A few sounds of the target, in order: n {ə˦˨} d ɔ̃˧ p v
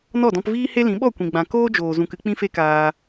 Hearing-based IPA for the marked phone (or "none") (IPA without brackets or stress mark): ɔ˦˨